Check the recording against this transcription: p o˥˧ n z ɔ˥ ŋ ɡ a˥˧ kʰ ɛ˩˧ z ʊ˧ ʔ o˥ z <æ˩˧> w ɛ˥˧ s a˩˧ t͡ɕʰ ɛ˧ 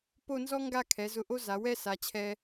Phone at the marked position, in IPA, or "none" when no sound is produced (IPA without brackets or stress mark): a˩˧